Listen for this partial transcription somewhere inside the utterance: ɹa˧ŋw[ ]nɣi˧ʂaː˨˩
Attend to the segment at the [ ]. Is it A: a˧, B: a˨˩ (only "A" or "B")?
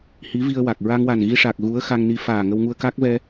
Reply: B